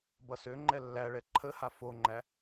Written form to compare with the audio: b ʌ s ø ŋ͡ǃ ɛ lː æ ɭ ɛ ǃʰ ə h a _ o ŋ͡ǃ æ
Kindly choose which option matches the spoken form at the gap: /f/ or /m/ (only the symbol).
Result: f